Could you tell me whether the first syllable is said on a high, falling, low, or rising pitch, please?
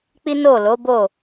high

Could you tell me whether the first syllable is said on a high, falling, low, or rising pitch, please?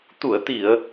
low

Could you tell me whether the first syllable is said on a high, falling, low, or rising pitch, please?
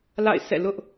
falling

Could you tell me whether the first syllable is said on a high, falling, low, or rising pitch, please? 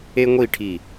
high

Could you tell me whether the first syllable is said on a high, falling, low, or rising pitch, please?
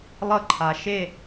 falling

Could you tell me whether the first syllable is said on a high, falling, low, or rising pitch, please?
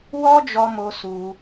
high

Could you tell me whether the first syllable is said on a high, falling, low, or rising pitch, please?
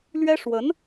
high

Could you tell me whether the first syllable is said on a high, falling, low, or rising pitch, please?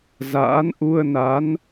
rising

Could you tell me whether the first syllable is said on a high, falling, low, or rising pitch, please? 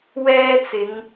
high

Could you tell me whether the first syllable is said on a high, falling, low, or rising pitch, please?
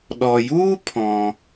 low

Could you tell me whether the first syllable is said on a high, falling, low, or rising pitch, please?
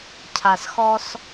low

